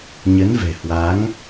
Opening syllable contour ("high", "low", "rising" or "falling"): rising